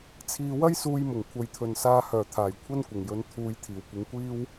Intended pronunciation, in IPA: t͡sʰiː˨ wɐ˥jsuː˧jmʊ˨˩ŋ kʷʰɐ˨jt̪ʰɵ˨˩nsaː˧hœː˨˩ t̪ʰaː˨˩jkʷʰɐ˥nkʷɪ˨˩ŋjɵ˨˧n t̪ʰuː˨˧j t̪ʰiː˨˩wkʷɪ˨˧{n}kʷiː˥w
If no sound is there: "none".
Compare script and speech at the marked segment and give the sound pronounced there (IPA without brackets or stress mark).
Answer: ŋ